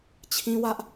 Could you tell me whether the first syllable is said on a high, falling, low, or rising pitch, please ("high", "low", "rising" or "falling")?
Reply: high